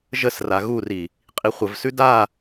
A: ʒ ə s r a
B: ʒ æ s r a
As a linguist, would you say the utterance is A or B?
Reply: A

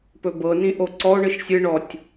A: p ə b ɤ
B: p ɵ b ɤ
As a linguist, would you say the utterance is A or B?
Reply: B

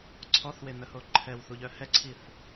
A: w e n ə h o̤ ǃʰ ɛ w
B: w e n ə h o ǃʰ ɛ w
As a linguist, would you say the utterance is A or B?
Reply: B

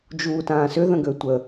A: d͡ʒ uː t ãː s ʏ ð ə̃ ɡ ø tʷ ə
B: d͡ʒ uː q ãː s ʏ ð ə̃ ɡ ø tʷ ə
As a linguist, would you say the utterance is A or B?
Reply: A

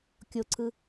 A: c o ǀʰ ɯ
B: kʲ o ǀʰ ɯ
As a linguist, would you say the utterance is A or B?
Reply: B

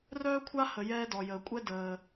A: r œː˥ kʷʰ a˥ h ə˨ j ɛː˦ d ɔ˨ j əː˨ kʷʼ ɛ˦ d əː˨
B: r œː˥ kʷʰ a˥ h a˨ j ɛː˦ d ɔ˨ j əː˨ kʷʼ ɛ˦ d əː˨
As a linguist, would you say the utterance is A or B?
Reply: A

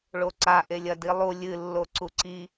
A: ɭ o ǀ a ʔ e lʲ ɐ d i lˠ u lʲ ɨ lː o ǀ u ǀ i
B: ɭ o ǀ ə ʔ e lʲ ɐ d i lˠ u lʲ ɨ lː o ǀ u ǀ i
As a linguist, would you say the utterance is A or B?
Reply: A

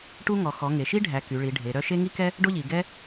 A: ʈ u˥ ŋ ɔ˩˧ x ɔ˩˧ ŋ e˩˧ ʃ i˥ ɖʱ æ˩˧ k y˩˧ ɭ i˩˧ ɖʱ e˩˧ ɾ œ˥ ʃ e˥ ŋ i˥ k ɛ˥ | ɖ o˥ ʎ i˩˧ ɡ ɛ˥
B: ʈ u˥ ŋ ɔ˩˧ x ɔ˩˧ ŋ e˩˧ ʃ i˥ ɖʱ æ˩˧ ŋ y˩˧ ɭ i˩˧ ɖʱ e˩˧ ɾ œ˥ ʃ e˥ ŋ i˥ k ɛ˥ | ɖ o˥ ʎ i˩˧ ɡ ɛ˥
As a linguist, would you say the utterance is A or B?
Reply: A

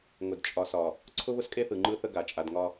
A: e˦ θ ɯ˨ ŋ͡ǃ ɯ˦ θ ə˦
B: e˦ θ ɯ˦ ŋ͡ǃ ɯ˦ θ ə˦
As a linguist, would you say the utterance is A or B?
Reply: A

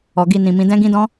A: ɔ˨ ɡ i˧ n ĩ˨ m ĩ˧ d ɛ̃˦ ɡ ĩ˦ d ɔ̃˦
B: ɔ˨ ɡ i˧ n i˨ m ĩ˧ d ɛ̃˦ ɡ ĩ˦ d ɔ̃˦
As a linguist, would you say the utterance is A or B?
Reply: A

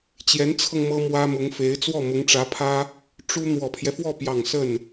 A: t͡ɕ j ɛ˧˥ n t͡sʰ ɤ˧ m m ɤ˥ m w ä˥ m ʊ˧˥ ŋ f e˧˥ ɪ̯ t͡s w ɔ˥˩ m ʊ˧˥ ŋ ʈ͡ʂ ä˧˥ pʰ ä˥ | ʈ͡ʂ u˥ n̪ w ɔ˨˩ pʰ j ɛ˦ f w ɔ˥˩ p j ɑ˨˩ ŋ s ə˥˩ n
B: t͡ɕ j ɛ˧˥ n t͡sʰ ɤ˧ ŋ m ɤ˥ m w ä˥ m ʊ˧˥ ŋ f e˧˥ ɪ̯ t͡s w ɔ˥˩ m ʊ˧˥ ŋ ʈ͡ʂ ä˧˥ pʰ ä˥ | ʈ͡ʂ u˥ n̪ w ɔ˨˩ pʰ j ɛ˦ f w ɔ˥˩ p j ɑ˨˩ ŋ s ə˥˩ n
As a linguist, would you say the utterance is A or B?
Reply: B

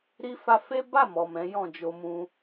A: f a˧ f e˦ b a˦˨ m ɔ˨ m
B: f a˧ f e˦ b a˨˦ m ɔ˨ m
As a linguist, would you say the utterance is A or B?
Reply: A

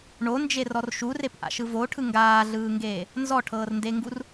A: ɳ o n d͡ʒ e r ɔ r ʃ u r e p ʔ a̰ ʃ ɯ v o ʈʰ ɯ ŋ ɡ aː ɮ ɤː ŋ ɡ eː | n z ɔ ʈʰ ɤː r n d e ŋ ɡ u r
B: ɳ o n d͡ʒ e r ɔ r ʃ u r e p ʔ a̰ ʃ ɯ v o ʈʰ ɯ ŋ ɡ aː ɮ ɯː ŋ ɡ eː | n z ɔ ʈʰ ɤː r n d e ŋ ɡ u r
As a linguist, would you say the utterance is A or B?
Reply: B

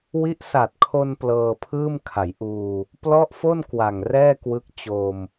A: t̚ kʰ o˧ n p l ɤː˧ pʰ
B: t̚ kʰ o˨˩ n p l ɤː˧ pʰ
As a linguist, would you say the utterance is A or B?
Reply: A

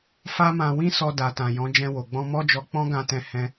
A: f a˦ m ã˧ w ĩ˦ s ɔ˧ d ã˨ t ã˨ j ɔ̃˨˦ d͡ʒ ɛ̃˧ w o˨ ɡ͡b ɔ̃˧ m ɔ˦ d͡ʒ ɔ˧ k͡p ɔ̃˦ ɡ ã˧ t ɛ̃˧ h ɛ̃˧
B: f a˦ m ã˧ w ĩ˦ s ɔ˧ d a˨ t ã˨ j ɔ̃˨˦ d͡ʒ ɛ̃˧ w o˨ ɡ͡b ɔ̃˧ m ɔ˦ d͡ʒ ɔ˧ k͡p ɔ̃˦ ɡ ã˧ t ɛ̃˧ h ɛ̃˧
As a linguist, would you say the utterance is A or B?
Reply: B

